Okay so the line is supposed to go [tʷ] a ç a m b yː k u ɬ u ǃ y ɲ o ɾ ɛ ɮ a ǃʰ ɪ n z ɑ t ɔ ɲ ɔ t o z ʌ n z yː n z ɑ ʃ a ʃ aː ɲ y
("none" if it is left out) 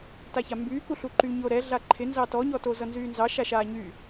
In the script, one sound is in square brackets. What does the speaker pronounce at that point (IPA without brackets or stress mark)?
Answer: t